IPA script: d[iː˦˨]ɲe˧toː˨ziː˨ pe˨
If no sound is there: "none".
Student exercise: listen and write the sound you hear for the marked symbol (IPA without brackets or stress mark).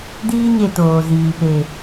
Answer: iː˦